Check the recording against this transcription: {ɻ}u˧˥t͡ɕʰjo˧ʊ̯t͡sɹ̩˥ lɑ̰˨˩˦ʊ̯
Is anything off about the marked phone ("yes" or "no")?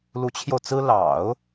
yes